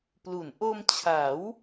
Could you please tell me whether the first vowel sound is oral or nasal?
oral